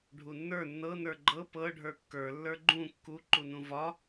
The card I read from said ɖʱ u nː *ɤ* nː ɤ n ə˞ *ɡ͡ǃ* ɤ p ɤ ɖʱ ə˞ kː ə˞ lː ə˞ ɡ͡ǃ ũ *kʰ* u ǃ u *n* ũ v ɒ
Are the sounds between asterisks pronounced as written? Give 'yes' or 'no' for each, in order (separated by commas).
no, yes, no, yes